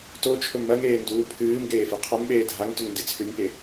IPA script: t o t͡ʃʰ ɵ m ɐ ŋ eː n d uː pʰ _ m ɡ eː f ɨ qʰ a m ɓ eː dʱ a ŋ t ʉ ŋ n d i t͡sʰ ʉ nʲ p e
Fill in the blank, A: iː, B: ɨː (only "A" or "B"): B